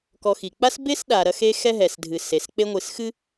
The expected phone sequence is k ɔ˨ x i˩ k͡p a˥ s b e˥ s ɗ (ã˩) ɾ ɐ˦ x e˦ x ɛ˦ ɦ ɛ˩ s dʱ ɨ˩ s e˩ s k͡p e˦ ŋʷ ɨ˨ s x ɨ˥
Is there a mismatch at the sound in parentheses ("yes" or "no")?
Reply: yes